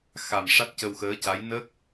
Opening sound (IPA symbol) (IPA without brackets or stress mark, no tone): x